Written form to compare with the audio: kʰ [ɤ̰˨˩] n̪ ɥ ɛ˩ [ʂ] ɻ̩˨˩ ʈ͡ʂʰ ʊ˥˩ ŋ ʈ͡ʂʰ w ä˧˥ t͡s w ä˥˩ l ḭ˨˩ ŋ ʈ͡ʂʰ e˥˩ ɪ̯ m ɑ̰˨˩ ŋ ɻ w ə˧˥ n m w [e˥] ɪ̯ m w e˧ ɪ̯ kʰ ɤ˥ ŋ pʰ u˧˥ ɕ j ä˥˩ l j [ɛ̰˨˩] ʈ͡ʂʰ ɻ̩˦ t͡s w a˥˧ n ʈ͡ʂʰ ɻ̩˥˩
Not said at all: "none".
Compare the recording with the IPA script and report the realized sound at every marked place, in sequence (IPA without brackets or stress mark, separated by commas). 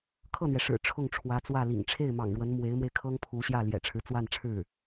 ɤ˥˩, ʂ, e˧˥, ɛ̰˨˩